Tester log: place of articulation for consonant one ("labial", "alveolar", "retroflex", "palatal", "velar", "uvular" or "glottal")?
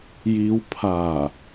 palatal